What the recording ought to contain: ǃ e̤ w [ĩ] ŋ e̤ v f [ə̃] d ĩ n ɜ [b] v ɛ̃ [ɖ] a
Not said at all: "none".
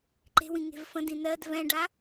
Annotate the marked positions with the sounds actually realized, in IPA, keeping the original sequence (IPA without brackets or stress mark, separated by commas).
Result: ĩ, ə̃, d, ɖ